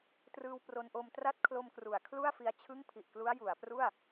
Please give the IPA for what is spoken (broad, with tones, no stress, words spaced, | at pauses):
trɯː˧wpro˧nʔo˧m tra˥˩t̚kʰlo˧m kru˩˦a̯kʰlu˥˩a̯fi˧a̯ t͡ɕʰɯ˥˩ŋpʰi˨˩ʔklu˦˥a̯ ju˩˦a̯pru˥˩a̯